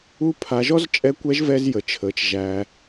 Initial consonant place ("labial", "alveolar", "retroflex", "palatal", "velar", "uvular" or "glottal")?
labial